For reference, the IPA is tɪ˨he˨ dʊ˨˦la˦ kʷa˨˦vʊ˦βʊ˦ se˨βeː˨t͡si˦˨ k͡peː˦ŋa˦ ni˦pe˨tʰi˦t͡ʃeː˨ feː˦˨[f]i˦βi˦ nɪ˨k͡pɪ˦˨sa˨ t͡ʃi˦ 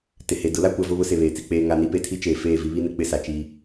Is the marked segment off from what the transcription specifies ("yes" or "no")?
yes